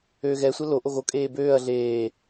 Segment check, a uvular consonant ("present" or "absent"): absent